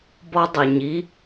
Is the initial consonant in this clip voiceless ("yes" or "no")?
no